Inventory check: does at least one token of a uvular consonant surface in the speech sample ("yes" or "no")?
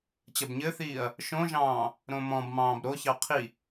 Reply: yes